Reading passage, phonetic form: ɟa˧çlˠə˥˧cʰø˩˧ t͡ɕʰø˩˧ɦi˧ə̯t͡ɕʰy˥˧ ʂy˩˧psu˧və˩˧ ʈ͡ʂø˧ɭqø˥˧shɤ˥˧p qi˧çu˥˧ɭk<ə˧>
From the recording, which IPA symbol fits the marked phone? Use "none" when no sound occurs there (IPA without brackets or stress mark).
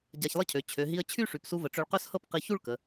ə˩˧